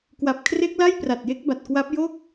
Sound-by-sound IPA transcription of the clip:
k w a˨˩ p̚ kʰ r e˦˥ k̚ l a˥˩ j p r a˨˩ t̚ j e˦˥ k̚ b a˨˩ t̚ k w a˦˥ p̚ j o˥˩ k̚

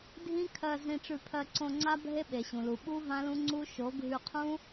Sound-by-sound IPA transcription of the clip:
dʱ ĩ˦ kʰ ɜ˧ z ĩ˧ ʈ͡ʂ ʉ˧ pʰ ɜ˧ ǀ õ˧ ŋ͡ǀ a˦ bʱ e˦ ɓ e˨ ɕ ũ˨ l u˨ ɓ u˦ v ã˦ l ũ˦ ŋ͡ǀ u˦ ʃ o˨˦ ɡʱ ʉ˧ qʰ ũ˦

